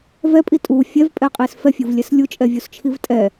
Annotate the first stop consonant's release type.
ejective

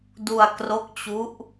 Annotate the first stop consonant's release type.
plain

